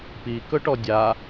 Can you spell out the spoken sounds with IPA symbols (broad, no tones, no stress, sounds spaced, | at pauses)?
p i k ɵ ʈ ɔ dʲ a